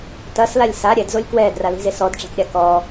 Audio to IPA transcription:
t ɐ s l a lʲ s a ɾʲ ɛ d z o lʲ k w ɛː d r a l i̤ z e s ɔ d ʈ͡ʂ a̤ k ɾʲ a k ɔ

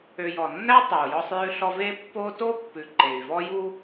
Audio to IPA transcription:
ø˨ j ɔ˩ nː æ˥ tˤ œ˩ u̯ j ɔ˦ sˤ j ʉ˦ ɬ ɔ˦ v e˦ pː o˦ t o˥ pː ʉ˨ ǃ e˩ y̯ v ɔ˥ j u˥

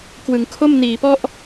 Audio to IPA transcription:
k w ɯ˩˦ ŋ kʰ o˥˩ m n iː˩˦ p ɔ˥˩ ʔ

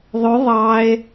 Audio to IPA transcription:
ðˤ ɵ ðˤ ɑ e̯

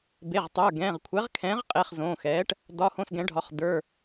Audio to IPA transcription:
b e˩˧˩ ʁ tˤ ə˞˩˧˩ ɡ ɛ̃˩˧˩ ʁ kʷʰ ɛ˩˥ ʁ kʰ ɛ̃ː˩˥ ʁ qʼ e˩˧˩ χ z õː˩˧˩ x ɛː˩˥ ʈ | d ɒ˩˧˩ h õ˩˧˩ s ɡ ɛ̃˩˥ ɖʱ ɒ˩˥ χ d ə˞˩˧˩

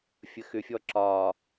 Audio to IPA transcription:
fʲ ə x ʏ fʲ ɔ ǁ ɒ

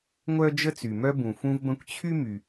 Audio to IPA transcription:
ŋʷ œ˥ d͡ʒ ə˥ t͡s y˩ m œ˥ b ũ˩ f ũ˥ v b ə̃˥ kʷ t͡ɕʰ y˥ m y˩

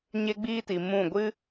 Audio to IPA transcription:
ɲ e˦ ɡ͡b iː˦ t i˨ m ũ˦˨ ɡʷ ɨ˦

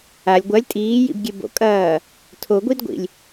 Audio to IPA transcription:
a lʲ ɡʷ ɐ lʲ tʼ iː j ḭ b ɡʲ e b o̰ kʼ ɐː | tʰ o ɡʷ i d ɡʷ ḭ lʲ

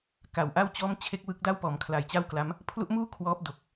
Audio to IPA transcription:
k a˨˩ w ʔ a˥˩ w t͡ɕ ɔː˥˩ m t͡ɕʰ e˥˩ k̚ w ɯ˦˥ k̚ d a˥˩ w p ɔː˩˦ m kʰ l a˨˩ j t͡ɕ a˥˩ w k l a˦˥ m | pʰ l u˦˥ ʔ m uː˥˩ kʰ w ɔː˦˥ p̚ d o˨˩ k̚

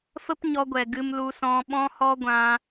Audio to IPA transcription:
f ə˦ p ɲ ɔ˧ ɡʷ ɛ˨ ɡ ɨ˧ m l u˧ s ɔ̃˧ ɓ ɔ̃˦ h ɔ˦ ɡʷ ã˧

